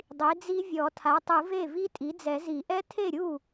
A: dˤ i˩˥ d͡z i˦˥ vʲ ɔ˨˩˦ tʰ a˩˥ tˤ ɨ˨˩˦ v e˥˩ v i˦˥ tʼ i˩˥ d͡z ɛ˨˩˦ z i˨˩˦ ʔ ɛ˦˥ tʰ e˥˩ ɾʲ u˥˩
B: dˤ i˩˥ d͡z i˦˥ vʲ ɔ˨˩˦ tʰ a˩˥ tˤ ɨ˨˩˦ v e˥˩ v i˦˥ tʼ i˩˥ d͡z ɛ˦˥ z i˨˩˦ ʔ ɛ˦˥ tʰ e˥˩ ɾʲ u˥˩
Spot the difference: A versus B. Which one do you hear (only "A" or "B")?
A